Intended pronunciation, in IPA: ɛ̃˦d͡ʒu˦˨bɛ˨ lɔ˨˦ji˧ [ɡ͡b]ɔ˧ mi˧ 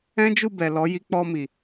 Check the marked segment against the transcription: incorrect: k͡p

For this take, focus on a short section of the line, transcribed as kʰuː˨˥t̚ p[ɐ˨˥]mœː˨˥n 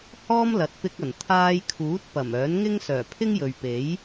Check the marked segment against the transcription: incorrect: ɐ˨˩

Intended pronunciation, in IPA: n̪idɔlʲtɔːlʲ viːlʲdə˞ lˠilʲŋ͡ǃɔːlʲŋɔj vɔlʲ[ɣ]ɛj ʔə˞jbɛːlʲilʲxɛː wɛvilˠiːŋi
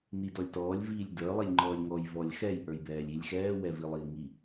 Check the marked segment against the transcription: incorrect: x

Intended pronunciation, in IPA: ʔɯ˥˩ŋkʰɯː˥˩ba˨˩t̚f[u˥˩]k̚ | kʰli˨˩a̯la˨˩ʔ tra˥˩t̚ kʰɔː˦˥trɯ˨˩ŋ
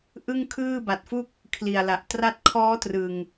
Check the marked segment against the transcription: correct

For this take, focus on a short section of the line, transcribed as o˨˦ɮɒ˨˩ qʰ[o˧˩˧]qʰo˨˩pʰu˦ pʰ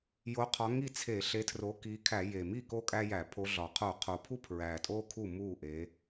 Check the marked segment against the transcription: correct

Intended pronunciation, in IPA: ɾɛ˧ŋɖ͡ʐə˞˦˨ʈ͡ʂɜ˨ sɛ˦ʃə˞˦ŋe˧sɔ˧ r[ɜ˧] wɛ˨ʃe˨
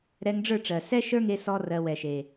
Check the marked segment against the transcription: correct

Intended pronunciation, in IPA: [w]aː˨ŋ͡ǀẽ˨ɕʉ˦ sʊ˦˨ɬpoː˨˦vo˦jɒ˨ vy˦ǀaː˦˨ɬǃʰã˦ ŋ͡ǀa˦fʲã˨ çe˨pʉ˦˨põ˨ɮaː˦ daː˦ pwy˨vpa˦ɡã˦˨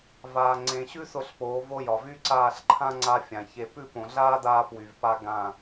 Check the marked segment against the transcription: incorrect: v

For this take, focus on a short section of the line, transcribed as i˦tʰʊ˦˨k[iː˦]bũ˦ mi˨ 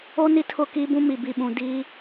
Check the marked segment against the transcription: correct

